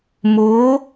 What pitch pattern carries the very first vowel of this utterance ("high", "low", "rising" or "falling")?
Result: rising